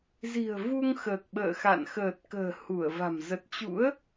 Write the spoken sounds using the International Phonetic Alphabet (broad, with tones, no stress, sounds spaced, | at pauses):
z i̤˨˩ ə̯ v u˧ ŋ x əː˨˩ k̚ ɓ ə̰ː˧˨ x a̰˧˨ n x əː˨˩ t̚ k ə̤ː˨˩ h u˧˩ ə̯ v a̤˨˩ m z ə˨˩ t̚ t͡ɕ ṵ˧˥ ə̯